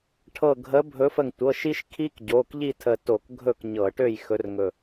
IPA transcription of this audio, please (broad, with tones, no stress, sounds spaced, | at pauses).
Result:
ʈʰ ɤ˧˩ ɡʱ ə˨˦ bʱ ɵ˨˦ f ə˧˩ ŋ tʷ ɤ˩˧˩ ʃ i˦ ʃ kʰ i˦ k ɟ o˩˧˩ k ʎ i˥˨ tʰ ə˧˩ t o˧˩˧ k ɡʱ ɵ˥˨ k ɲ ɤ˧˩˧ ʈ ø˥˨ j x ɵ˨˦ r ŋ ɵ˧˩